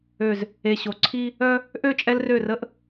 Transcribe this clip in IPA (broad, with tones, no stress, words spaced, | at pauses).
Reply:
ø˨z | e˨ ɕo˨ ǀʰi˦ | œ˦ | ʔø˦˨t͡ʃʼɛ˦lrø˦˨rə˦ʔ